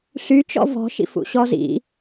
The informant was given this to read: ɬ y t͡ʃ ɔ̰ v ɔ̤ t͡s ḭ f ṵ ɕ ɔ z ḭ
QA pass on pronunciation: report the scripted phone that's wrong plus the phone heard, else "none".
t͡s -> ʃ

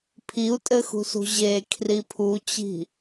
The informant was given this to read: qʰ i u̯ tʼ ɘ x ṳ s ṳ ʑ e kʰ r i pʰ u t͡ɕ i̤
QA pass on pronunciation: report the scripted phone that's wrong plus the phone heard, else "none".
qʰ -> pʰ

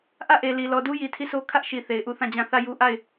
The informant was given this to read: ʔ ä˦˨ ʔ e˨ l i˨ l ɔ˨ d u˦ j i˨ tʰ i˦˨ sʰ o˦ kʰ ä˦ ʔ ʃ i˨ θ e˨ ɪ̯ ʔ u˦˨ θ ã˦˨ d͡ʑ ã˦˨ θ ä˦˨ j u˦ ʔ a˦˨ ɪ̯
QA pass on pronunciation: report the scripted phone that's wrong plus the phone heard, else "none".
none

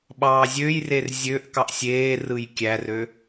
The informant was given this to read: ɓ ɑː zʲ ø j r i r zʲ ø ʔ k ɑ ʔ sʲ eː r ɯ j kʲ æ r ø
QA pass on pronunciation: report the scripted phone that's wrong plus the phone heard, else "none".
i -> e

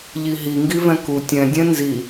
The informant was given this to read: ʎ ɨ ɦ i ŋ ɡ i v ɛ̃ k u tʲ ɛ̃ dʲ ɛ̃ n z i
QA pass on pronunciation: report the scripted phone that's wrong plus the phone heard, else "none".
ɨ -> i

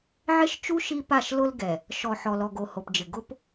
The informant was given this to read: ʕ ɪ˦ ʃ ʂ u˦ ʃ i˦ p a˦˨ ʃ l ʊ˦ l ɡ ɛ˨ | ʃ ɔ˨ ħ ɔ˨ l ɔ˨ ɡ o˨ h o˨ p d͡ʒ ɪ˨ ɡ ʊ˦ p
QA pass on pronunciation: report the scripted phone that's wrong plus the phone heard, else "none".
ʂ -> t͡ʃ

